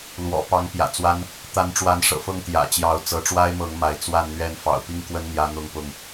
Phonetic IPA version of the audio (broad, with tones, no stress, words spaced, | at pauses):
lwɔ̰˨˩pɑ˨˦ŋ pjä̰˨˩t͡swa˦n | t̪a˨˦nʈ͡ʂwa˨˦nʂɤ̰˨˩ fɤ˥˨ŋt̪jä̰˨˩t͡ɕjɑ˨˦ʊ̯ t͡sɤ˨˦ʈ͡ʂwa˦ɪ̯mɤ˨˦ŋ ma˨˦ɪ̯ t͡swa˥˨nn̪ɥɛ˥˨n fɑ̰˨˩ʊ̯pi˥˨ŋkwə˦n n̪jä˦n̪ʊ˥˨ŋpʊ˥˨ŋ